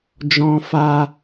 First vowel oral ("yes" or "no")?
no